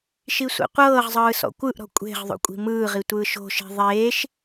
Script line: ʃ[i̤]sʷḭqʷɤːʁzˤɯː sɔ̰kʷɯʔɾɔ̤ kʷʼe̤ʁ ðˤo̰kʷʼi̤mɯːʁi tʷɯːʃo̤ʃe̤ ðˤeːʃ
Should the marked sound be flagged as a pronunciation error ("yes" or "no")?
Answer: yes